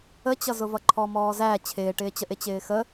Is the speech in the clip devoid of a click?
no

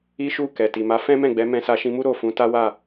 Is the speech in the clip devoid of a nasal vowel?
no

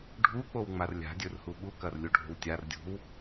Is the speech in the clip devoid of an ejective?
yes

